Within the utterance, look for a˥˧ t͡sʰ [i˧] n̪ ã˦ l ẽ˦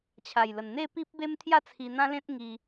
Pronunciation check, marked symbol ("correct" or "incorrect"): correct